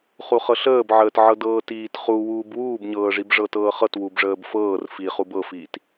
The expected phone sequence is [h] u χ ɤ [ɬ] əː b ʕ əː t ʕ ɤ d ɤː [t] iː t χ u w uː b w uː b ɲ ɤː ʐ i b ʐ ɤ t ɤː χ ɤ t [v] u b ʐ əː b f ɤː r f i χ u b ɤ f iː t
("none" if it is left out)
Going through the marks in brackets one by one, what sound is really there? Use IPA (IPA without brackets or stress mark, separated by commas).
χ, ɬ, t, w